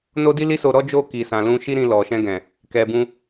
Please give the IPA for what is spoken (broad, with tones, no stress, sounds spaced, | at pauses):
n o˦ d i˦ l i˦ s o˧ ɾ ɔ˦ d͡ʒ o˦˨ k i˨ s ã˨ l ũ˧ ʃ i˦ ɾ ĩ˧ l ɔ˨ ʃ ɛ̃˧ ɡ ɛ̃˨ | k ɛ˨ b ũ˧